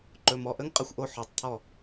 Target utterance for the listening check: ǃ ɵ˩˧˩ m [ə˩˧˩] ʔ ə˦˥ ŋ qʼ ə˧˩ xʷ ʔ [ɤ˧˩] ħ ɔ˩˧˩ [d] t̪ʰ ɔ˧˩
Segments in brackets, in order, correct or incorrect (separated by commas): incorrect, incorrect, incorrect